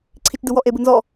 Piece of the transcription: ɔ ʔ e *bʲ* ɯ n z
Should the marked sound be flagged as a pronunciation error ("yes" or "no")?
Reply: yes